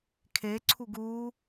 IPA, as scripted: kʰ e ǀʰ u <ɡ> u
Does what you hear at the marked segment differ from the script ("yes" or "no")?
no